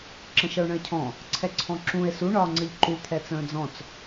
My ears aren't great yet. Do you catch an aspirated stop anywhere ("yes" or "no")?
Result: yes